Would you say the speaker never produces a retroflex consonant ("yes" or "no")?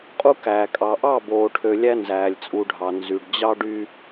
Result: no